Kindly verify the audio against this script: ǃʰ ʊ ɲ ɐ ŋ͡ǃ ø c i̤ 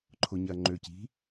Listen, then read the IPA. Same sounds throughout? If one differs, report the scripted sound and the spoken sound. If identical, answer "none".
none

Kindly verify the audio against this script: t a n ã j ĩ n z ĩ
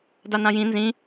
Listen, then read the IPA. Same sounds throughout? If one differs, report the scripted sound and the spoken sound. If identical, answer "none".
t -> d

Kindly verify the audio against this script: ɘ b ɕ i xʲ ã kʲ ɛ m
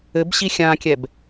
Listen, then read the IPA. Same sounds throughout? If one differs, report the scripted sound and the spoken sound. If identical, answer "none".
m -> b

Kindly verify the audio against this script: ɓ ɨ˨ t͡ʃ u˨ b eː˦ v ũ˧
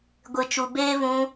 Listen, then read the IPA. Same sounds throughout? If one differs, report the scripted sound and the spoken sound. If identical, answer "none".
ɓ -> ɡʷ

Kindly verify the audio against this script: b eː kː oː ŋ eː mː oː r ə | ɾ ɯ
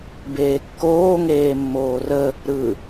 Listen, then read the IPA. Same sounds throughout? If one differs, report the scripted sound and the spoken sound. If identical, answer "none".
none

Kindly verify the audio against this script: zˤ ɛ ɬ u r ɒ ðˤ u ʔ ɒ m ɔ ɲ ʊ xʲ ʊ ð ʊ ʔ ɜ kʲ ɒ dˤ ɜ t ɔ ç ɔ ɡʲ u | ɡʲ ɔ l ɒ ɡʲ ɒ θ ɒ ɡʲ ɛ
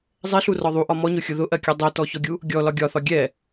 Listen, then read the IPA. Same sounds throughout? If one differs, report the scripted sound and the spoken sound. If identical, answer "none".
none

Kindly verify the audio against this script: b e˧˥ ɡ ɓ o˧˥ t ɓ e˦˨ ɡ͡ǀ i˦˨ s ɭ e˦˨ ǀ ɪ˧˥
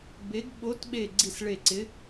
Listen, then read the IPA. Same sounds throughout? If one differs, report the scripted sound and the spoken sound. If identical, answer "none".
none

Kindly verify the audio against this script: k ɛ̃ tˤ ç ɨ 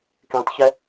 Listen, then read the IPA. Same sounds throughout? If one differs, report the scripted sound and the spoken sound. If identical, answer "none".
ɨ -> ɛ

